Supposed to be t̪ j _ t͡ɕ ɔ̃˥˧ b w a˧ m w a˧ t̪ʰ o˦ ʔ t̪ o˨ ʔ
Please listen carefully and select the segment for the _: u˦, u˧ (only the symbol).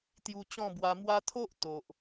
u˧